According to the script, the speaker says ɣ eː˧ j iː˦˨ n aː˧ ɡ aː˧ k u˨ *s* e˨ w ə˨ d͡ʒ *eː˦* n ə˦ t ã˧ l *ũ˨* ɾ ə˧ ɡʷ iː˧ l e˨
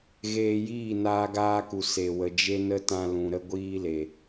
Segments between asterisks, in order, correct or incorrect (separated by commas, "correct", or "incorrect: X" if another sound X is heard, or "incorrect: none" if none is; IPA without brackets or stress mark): correct, incorrect: e˦, correct